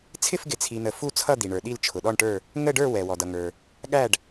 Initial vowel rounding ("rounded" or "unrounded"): unrounded